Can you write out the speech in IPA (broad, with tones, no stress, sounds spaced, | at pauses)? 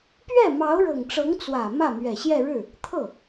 p ɥ ɛ˥˩ m ɑ˧˥ ʊ̯ ɻ ɤ˨˩ ŋ ʈ͡ʂ ɤ˧˥ ŋ t͡s w ä˨˩ m ä˥˩ m ɥ ɛ˨˩ ɕ j ɛ˥˧ ɻ ɻ̩˥˩ | t̪ʰ ɤ˥˩